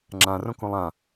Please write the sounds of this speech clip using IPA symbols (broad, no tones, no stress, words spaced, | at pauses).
ŋ͡ǁãrõkũlˠ ã